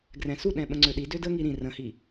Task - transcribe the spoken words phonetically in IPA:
ɡ r ɛ̃ s u ɗ ɛ̃ ɓ ə̃ ŋ͡ǀ ø ɗ i d ø d ə ŋ i ɾ ĩ r ə̃ h i

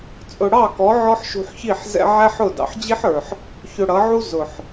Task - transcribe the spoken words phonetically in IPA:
t͡sʼ ʊ˨ ɽ ɑ˦˨ k ɔ˨˦ ʕ ɔ˦ ħ ʃ ṳ˧ ħ ç i˦˨ ħ z ɛ̰˧ ʕ æ˦ ħ ʊ˦˨ d ɑ̰˨ ħ d͡ʑ i˦ ħ ə˞˨ ħ | ç ʊ˧ ɽ ʌ˨˦ ʕ u˦ z ʊ˨ ħ

